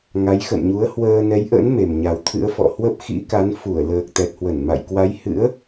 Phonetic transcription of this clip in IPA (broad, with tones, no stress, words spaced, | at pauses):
ŋa˨˦jxə̰˧˨nɲu˨˦ə̯ hwəː˧nɛ˨˦jʔə̰˧˥n me˨˩mɲa˨˩wt̪ʰɨ̰˧˥ə̯fɔ̰˧˨ hwə˦˥p̚xḭ˧˥ka˨˦n fu˧˩ə̯ləː˨˩k̚ t̪ɛ˨˩t̚hwə˧˩n ma̰˧˨jkwa˨˦jhɨ̰˧˥ə̯